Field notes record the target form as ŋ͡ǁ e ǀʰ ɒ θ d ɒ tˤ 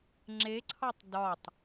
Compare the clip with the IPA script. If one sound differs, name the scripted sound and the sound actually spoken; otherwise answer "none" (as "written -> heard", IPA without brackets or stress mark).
θ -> tˤ